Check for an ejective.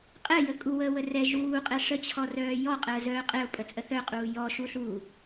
present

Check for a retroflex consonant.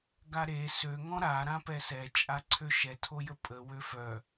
absent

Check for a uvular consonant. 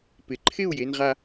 present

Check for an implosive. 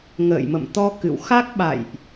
present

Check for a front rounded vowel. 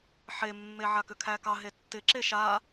present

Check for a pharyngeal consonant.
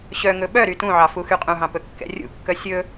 present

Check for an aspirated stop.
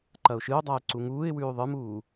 absent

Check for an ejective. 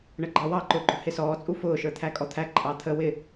present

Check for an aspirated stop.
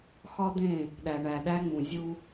absent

